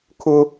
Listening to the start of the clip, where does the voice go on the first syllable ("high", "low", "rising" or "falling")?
high